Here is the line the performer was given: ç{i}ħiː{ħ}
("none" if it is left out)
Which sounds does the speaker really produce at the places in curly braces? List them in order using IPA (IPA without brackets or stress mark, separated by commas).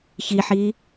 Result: i, none